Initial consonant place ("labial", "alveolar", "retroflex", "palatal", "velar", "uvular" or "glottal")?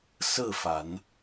alveolar